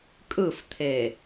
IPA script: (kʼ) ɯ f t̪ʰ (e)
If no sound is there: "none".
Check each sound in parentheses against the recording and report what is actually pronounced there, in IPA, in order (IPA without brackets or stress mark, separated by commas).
kʼ, e